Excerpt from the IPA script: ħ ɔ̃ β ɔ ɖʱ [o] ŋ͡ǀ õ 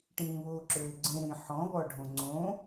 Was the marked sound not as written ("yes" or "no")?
yes